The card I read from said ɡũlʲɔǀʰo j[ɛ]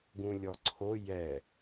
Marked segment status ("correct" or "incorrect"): correct